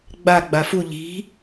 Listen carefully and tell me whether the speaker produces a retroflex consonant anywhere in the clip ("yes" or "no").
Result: no